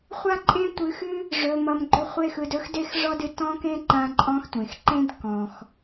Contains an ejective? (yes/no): yes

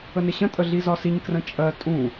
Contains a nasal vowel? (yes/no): yes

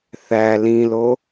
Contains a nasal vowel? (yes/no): yes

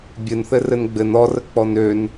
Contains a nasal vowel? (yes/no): no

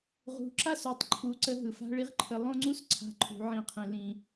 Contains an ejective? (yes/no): no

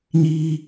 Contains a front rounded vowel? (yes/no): no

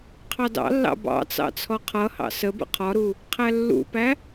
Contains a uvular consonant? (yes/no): yes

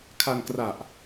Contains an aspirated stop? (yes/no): yes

